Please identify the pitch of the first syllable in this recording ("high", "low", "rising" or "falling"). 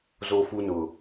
high